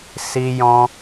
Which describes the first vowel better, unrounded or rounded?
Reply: unrounded